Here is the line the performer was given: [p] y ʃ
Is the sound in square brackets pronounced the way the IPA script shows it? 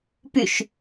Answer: yes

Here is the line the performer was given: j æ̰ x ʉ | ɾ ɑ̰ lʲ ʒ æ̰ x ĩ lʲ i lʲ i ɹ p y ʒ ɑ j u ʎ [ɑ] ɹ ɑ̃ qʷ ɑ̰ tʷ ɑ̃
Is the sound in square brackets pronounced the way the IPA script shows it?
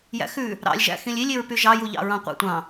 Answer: no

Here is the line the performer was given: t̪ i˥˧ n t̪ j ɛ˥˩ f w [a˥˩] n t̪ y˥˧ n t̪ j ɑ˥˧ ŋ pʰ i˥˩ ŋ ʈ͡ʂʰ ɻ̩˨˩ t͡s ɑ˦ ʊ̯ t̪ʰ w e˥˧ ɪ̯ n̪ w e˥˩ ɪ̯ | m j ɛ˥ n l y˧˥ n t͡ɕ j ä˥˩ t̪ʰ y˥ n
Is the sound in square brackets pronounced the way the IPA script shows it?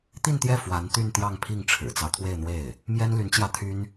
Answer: no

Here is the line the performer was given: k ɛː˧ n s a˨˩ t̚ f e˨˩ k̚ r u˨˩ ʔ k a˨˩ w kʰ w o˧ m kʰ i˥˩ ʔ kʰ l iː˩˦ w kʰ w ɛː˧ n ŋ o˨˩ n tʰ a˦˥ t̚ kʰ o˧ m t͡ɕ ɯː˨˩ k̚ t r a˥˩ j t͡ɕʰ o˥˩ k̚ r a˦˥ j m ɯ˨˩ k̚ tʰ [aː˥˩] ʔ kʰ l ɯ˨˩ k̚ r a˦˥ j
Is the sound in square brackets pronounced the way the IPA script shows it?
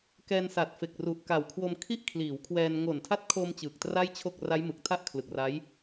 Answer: no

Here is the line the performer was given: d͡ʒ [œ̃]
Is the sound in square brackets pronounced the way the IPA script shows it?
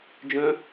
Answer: yes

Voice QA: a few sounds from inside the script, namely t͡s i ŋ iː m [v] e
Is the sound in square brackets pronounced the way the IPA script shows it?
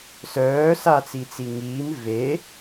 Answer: yes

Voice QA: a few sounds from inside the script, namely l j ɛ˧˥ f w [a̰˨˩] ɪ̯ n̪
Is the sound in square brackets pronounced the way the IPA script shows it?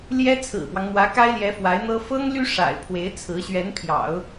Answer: no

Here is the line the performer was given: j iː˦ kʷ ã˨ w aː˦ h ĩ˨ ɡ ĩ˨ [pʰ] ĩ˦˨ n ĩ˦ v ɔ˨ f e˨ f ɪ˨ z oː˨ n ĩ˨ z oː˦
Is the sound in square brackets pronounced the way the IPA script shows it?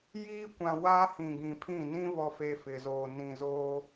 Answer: yes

